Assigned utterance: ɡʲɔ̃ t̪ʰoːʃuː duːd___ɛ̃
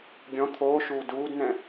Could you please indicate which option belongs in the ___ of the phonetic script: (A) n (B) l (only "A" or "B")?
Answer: A